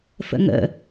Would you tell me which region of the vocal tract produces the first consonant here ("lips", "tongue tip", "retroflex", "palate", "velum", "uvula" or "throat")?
lips